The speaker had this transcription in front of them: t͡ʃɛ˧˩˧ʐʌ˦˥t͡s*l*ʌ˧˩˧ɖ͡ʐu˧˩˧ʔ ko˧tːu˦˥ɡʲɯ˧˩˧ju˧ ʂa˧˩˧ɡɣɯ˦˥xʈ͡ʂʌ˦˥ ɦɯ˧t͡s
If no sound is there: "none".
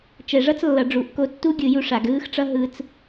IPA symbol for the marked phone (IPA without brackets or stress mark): lː